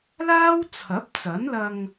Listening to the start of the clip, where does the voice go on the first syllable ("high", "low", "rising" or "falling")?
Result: high